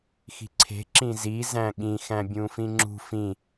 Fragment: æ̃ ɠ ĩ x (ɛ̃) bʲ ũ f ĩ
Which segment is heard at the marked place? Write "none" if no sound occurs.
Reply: æ̃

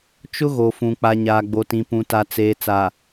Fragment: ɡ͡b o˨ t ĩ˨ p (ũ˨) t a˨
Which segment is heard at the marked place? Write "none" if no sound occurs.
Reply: ũ˨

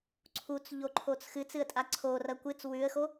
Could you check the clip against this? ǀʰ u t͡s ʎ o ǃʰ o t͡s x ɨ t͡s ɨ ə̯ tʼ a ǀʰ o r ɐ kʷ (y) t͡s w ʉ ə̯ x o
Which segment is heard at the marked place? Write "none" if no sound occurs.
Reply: ɨ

